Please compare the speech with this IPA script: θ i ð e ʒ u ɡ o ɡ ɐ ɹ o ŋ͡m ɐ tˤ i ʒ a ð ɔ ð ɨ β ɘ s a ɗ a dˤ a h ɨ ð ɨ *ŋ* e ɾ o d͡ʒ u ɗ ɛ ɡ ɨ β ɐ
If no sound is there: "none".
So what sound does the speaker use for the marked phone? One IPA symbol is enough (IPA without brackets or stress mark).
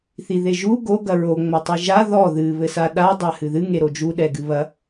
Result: ŋ